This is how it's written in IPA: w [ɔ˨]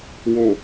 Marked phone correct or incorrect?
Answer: incorrect